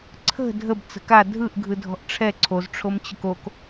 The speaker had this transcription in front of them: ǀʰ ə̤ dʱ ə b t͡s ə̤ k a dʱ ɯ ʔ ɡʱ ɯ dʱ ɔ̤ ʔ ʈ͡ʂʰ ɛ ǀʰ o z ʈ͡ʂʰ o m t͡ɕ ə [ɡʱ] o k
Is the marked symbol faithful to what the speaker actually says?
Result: no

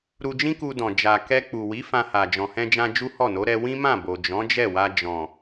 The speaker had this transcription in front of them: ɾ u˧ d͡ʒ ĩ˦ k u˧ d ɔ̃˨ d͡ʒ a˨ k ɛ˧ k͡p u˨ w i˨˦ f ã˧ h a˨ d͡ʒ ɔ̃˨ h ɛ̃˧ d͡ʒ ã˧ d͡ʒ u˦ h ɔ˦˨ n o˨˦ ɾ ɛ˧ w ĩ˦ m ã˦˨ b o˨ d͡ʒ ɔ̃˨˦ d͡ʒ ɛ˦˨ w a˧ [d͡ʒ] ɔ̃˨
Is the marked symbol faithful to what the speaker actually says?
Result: yes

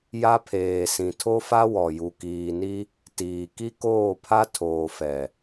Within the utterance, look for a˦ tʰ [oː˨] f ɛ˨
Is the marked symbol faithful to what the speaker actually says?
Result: yes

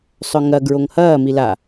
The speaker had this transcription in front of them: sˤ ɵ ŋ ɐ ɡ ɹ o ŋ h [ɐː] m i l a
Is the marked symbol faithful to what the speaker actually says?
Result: yes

